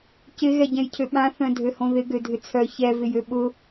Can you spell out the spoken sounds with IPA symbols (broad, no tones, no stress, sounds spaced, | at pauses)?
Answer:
c ɪ ɣ ɛ ɟ ɛ̃ j cʰ ø ɓ ã θ œ̃ dʱ ø h õ ð ɪ ɡ ø dʱ ʏ t͡sʰ œ ç ɛ v ɪ j ø ɓ ʊ